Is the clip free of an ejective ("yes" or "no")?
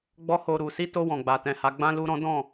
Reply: yes